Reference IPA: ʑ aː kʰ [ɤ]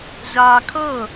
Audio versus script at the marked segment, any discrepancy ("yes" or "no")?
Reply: no